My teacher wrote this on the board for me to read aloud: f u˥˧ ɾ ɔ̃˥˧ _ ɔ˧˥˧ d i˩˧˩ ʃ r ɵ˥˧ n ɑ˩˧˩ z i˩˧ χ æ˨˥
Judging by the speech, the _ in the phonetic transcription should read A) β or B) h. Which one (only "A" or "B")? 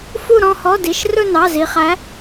B